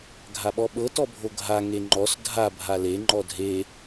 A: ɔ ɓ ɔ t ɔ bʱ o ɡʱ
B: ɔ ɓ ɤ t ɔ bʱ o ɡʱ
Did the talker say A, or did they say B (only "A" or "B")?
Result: B